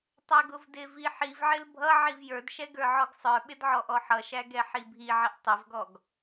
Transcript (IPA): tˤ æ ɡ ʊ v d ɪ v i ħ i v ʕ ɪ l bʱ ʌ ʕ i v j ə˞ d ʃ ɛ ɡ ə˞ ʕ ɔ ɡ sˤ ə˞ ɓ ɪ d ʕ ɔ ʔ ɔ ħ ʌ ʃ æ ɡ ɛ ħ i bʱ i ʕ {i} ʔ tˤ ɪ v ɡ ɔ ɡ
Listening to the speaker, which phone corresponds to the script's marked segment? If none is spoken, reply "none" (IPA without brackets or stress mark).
ɪ